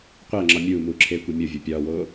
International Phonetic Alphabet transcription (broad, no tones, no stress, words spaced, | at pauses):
qʷæŋ͡ǁɒ mʲuːmuːǁʰeːkʷe mʲovʲo pʲɒːwoː